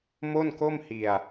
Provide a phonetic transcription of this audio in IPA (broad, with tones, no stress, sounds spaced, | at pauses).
m o˥˩ n k o˥˩ m h i˧ a̯